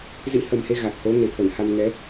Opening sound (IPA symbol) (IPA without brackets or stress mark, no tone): z